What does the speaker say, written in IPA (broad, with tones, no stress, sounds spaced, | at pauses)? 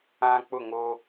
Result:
ã˦ k͡p ʊ˦˨ ŋ o˦